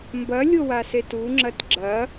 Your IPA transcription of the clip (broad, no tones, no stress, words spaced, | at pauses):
mbɐlʲowaset uŋ͡ǁɐt ɡ͡ǁɐ